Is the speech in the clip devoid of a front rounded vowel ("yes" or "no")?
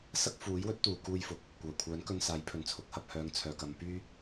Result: no